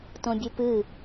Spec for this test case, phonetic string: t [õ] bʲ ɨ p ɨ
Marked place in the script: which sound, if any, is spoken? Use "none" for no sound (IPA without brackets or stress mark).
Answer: õ